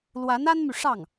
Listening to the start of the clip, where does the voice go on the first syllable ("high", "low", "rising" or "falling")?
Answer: rising